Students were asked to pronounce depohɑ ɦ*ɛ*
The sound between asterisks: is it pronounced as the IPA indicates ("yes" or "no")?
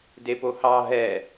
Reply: yes